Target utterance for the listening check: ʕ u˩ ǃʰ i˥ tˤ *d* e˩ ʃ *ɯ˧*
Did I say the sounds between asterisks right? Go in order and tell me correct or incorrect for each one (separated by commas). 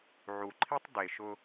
correct, incorrect